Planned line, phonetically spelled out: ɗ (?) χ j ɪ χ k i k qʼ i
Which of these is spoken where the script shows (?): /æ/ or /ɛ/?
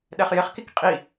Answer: ɛ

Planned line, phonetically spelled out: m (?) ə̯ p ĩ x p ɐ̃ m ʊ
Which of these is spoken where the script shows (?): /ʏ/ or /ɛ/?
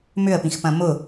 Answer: ʏ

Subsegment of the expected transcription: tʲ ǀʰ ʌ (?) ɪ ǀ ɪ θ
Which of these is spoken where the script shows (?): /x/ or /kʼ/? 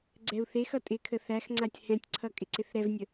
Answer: kʼ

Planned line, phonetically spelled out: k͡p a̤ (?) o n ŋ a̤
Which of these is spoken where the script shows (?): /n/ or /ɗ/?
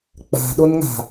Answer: ɗ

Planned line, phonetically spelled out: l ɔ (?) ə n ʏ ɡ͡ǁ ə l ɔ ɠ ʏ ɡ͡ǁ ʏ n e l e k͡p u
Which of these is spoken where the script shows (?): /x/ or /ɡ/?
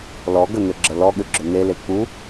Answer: ɡ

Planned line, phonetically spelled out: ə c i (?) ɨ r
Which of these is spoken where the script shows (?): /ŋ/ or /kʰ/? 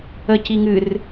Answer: ŋ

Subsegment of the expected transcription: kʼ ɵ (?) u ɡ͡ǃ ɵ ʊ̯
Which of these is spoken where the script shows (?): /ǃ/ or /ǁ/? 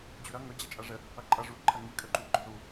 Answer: ǃ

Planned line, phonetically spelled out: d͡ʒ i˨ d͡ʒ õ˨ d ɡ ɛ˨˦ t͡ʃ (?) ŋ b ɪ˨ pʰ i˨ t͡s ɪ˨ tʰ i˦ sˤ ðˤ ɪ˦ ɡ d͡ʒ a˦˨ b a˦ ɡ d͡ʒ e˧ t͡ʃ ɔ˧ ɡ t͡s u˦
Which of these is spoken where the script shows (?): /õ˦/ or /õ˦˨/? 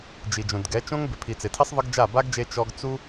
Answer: õ˦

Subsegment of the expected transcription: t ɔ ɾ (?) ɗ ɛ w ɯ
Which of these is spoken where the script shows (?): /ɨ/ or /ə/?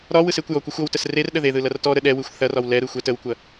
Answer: ə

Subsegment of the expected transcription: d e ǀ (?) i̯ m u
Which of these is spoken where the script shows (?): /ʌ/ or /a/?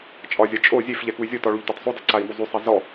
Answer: a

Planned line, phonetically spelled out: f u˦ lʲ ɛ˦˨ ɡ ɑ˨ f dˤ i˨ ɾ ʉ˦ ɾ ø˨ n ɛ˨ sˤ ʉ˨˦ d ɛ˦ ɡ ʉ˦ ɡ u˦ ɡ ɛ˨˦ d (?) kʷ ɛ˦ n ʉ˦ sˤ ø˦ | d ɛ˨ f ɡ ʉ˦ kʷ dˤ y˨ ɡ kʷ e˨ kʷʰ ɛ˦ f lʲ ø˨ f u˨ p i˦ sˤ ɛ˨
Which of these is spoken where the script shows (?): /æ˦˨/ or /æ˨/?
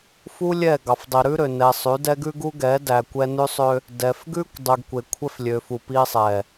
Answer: æ˨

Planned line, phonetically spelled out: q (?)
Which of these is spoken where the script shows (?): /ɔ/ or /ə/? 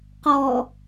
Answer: ɔ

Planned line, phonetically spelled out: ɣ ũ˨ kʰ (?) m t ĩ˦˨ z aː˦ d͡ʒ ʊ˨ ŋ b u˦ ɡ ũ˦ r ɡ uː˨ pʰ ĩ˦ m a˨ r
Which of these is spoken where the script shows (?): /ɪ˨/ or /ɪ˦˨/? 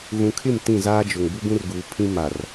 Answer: ɪ˦˨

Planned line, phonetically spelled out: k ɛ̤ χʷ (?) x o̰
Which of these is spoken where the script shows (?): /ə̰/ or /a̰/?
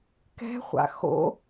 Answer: a̰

